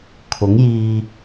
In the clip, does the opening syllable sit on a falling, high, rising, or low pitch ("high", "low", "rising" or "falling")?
rising